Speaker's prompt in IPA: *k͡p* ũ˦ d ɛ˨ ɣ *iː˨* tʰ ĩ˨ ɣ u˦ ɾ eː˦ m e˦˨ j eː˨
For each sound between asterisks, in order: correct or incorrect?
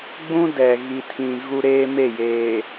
incorrect: ɡ͡b, incorrect: i˨

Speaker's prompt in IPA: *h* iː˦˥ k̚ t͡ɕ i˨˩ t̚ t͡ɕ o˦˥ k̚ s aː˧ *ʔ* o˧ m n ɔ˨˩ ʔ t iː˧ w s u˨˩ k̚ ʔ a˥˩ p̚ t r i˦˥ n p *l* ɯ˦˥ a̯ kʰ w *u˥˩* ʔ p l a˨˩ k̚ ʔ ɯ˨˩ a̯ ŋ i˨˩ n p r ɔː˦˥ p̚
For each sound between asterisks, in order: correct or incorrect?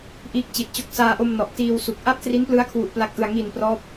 incorrect: ʔ, correct, correct, incorrect: u˨˩

